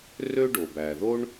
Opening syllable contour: high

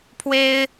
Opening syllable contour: high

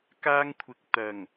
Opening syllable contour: high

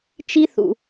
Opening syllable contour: high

